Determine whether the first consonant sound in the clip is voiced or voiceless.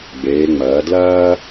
voiced